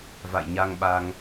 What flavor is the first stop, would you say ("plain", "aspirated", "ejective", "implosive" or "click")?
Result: implosive